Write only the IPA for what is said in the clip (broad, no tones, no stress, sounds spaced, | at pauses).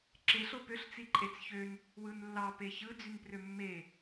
ǁ e ɬ o p ø ɬ t͡s i ǃʼ e t͡s ç ø n | w ɯ n lː ɑ p e ç ɯ d͡z y n p r ø mː e